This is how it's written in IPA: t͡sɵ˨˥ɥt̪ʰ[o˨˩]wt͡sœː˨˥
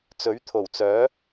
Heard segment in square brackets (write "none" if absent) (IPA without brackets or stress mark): o˨˩